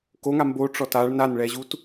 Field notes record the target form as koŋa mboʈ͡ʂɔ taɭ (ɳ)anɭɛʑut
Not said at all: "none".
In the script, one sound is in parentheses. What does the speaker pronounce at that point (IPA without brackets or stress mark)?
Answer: n